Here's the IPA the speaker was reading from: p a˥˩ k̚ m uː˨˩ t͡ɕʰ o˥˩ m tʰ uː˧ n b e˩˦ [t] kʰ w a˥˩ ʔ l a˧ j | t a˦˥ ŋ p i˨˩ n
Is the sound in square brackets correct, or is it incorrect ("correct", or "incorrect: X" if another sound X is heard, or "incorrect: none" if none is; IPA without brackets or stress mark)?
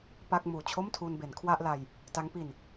incorrect: n